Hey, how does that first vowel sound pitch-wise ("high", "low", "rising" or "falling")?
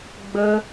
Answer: high